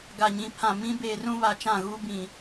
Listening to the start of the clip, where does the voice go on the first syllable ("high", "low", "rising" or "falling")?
low